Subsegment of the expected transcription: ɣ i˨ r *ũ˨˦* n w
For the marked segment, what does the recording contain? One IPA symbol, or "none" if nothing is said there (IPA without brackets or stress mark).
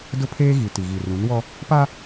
ũ˨˦